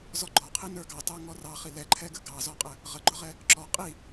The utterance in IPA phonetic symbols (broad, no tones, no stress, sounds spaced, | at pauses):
z ɔ ɡ͡ǃ ɔ qʰ i n ə˞ ɡ ɑ t ɑ ŋ ɔ r ɑ χ i l ɛ ǃʰ ɛ ɡ ə ɡ ɑ z ɔ qʼ ə | ʁ ə ɡ͡ǃ ʊ ʁ ɛ | ǁ ɔ qʼ i